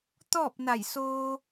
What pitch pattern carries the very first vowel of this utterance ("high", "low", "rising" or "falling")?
falling